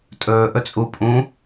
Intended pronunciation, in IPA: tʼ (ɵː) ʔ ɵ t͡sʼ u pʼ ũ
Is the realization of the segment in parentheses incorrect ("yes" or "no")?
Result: no